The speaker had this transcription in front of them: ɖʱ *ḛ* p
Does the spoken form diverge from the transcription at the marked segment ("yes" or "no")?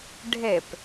yes